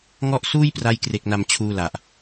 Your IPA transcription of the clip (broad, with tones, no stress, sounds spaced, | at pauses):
ŋ ɔ˥˩ ʔ s uː˥˩ j p r a˧ j k r e˨˩ k̚ n a˨˩ m t͡ɕʰ uː˧ l a˨˩ ʔ